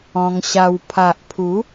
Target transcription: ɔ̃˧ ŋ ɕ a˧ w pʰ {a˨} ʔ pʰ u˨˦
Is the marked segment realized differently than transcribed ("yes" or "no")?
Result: no